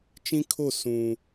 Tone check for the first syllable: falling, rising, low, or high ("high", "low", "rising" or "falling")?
high